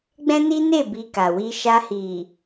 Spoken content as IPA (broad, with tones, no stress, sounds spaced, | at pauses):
ɡ͡b ɛ̃˦ n i˦ n e˦˨ b i˧ k a˨ w i˧ ʃ a˧ h i˨